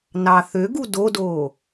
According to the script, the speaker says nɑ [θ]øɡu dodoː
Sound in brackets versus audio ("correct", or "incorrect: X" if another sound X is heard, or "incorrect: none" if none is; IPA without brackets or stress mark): correct